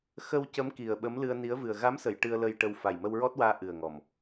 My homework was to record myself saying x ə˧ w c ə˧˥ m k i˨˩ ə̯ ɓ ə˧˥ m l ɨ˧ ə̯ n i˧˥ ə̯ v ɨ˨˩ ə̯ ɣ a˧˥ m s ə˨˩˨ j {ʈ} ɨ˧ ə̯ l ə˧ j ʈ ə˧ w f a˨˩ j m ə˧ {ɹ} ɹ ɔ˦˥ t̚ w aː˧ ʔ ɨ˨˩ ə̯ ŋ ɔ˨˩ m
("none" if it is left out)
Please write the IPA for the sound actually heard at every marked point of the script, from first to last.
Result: ʈ, w

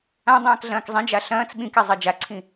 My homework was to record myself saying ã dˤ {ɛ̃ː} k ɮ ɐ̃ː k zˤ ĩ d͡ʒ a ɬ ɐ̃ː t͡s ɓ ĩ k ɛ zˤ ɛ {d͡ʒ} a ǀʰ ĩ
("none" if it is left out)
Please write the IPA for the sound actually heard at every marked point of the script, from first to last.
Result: ɛ̃ː, d͡ʒ

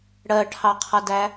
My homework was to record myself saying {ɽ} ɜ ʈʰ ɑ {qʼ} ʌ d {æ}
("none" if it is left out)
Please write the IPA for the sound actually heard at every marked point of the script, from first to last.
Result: ɽ, qʰ, æ

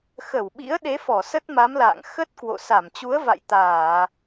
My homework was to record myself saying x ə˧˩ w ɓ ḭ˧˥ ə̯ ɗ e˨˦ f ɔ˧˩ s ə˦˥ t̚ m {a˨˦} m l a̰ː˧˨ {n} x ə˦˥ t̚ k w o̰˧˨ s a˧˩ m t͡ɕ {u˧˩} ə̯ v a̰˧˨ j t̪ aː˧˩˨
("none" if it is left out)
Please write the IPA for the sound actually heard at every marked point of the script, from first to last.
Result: a˨˦, ŋ, u˨˦

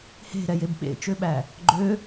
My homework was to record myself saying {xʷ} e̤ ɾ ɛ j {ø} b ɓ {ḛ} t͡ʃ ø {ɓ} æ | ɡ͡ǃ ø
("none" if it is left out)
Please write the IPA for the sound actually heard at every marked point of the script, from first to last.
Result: h, e, ḛ, ɓ

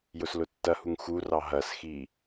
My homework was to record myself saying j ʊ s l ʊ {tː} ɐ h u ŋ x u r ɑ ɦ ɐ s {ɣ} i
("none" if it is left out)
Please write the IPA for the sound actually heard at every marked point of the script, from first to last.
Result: tː, x

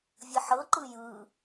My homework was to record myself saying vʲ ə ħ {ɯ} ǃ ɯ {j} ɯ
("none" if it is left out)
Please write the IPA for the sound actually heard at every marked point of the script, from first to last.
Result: ɤ, j

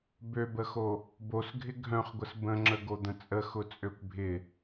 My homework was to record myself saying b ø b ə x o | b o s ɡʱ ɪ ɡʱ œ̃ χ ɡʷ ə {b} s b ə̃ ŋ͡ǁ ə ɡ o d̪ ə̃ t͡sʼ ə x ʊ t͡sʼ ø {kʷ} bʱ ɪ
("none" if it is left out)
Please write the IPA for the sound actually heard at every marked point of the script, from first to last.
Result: none, kʷ

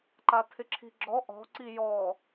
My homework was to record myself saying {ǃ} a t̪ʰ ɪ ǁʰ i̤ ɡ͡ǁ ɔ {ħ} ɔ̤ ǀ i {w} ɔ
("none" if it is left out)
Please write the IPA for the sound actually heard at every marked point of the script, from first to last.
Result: ǃ, ʔ, j

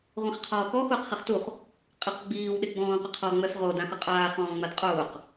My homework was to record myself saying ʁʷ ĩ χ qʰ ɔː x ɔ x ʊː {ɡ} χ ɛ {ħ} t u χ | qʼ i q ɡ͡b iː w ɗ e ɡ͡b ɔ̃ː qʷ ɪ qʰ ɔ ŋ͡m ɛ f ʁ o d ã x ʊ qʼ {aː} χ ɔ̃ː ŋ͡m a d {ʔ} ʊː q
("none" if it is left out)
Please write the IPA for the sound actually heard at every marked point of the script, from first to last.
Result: q, χ, aː, qʼ

